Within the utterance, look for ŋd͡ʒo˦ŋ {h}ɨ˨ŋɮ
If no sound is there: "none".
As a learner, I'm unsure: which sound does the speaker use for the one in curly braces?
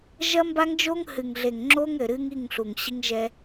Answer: h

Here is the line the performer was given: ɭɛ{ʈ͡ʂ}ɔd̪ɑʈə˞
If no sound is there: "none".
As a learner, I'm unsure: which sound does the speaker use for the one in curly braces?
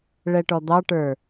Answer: ʈ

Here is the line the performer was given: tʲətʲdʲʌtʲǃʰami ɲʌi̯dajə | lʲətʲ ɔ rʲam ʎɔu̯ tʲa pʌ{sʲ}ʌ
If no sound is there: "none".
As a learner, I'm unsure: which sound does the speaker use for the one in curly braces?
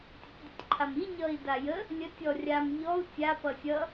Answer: sʲ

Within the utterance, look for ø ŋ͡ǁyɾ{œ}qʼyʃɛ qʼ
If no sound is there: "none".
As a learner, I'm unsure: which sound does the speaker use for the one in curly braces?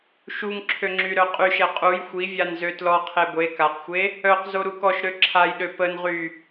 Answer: œ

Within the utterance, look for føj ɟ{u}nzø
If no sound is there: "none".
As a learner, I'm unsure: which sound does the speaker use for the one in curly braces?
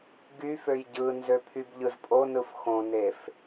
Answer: ɯ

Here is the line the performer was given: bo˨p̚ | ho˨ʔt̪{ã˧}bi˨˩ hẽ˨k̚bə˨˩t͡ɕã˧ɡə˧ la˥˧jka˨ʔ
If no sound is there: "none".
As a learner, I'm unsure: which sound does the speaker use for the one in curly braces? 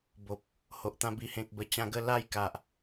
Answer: ã˧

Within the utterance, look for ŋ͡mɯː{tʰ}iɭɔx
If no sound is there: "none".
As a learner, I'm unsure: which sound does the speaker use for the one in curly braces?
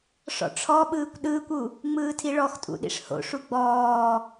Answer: tʰ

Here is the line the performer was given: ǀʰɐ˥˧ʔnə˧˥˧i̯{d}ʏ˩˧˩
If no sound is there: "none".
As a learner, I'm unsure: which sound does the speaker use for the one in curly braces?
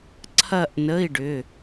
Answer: ɖ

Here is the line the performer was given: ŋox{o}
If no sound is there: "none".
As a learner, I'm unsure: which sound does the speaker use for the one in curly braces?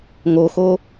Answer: o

